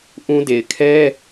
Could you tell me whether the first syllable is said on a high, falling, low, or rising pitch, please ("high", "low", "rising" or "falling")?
high